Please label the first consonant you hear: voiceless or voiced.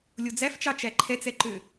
voiced